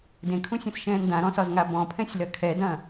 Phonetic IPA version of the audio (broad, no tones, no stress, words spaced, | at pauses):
dẽkʰũsʲũsʃɛ̃ːn dãɾɔ̃sɒzŋa bɔ̃pʰɛ̃sʲlɐ kʰɛdɐ̃ː